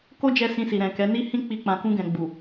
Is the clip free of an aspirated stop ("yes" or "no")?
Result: yes